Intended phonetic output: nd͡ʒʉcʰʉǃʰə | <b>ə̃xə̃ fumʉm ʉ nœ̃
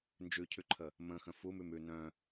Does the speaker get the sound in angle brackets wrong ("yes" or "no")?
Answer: yes